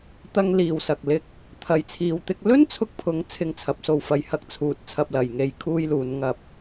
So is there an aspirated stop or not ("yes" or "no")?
yes